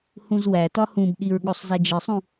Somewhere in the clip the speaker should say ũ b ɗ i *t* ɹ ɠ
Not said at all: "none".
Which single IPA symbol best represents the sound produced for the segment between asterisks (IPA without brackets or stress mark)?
none